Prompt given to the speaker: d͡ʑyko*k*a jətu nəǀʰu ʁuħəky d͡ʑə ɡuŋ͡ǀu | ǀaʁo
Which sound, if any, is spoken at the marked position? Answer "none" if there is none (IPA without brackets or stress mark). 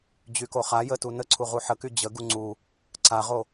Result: χ